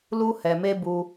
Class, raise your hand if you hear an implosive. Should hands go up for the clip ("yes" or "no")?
no